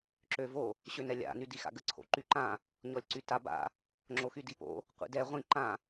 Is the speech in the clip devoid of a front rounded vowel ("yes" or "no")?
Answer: no